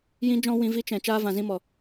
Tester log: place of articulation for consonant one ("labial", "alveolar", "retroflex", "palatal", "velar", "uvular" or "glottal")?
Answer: palatal